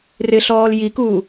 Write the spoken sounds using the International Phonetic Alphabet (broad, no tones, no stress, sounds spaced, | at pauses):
r ɪ ɬ ɔː l j i k uː